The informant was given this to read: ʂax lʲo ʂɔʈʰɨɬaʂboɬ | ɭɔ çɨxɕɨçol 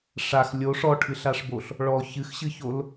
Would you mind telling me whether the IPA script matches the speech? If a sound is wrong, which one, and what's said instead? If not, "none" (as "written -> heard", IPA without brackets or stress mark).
none